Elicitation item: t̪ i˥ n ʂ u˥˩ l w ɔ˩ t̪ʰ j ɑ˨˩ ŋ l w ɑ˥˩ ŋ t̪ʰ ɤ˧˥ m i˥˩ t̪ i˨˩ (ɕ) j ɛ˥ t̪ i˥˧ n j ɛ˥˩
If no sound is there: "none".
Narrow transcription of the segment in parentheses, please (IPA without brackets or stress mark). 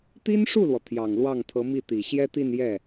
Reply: ɕ